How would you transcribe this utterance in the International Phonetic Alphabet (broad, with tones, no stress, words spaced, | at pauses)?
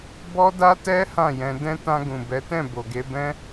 bɔ˦da˦tɛ˦ hã˦˨jɛ̃˧ dɛ̃˧ tã˧ɡũ˨bɛ˨˦tɛ̃˦˨ bo˨ɡe˧bɛ̃˦